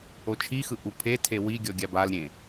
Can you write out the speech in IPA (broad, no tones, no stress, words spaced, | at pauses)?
ot͡ʃʰixɯ ʔupʰetʰe wi ɡʲɔɡʲabalɾʲẽ